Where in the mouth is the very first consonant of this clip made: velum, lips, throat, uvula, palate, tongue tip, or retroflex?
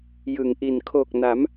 palate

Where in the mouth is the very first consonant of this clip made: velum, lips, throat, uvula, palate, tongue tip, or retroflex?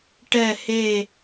retroflex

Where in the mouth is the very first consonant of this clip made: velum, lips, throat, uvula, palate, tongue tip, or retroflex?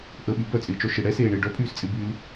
throat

